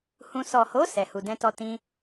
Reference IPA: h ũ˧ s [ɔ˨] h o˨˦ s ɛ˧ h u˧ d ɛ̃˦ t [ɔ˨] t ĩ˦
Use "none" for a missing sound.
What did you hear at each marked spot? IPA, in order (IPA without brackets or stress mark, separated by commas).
ɔ˨, ɔ˦